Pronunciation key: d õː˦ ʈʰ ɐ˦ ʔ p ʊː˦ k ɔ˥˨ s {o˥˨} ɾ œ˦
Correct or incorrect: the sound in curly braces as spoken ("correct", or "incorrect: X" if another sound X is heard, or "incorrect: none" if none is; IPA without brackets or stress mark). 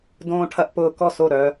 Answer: correct